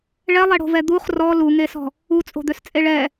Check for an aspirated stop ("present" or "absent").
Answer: absent